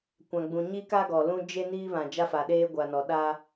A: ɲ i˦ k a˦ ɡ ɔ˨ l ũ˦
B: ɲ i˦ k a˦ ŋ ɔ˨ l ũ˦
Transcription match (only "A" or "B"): A